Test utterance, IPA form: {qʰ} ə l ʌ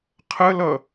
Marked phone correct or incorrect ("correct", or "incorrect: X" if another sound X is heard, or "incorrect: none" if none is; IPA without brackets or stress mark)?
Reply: correct